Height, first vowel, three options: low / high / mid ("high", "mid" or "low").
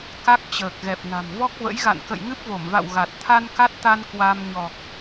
low